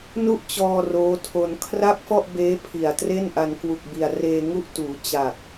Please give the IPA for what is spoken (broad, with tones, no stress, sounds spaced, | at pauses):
n u˥˩ ʔ t͡ɕ ɔː˧ r oː˦˥ tʰ o˧ n kʰ r a˥˩ p̚ f ɔ˥˩ ʔ b eː˦˥ pʰ i˨˩ a̯ t r e˥˩ n ʔ a˧ n k w u˨˩ k̚ b i˨˩ a̯ r eː˧ ŋ u˥˩ ʔ t uː˩˦ t͡ɕ a˨˩ k̚